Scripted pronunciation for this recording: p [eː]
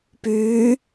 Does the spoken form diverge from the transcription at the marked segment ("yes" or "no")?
yes